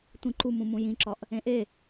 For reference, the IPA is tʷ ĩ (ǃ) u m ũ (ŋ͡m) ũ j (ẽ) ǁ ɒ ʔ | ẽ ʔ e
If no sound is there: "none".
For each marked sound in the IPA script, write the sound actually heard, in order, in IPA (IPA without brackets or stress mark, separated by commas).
ǃ, m, ĩ